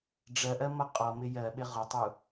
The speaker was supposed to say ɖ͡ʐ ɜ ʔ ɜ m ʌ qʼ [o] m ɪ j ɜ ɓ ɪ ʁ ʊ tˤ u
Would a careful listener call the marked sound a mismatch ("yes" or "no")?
yes